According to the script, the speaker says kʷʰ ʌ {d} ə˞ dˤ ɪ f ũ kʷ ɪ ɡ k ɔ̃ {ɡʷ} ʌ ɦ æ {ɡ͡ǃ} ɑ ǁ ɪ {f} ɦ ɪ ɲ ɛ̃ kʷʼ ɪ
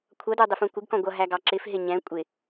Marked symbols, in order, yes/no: yes, yes, no, yes

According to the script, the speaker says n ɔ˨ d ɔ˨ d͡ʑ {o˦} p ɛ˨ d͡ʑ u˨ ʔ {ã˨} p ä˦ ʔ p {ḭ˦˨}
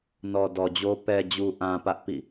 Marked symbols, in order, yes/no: yes, yes, yes

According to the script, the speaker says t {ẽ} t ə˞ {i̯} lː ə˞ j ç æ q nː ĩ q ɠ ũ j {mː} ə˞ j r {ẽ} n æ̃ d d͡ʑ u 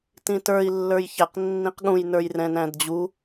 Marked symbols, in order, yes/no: no, yes, no, no

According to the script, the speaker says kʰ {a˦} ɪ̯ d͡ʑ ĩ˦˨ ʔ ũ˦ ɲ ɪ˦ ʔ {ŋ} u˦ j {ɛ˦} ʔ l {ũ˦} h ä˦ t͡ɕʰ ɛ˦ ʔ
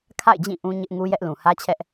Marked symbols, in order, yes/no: no, yes, yes, no

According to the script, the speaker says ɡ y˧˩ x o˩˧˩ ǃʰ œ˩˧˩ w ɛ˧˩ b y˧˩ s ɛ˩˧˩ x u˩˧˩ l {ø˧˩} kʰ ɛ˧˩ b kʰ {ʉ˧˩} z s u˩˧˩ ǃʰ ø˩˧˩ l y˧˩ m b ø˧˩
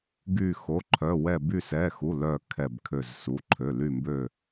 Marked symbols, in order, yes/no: no, no

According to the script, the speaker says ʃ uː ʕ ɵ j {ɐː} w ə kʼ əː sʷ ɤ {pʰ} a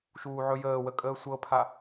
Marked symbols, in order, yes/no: no, yes

